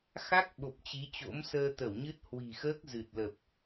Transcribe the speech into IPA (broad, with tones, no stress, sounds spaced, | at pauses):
x a˦˥ k̚ ɓ o˨˩ p̚ t͡ɕ i˨˦ t͡ɕ o̰˧˥ m s əː˧ t̪ ə˧˩ w ɲ ɨ˦˥ t̚ h w i̤˨˩ x əː˦˥ k̚ z ɨ˨˩ t̚ l ə˨˩ p̚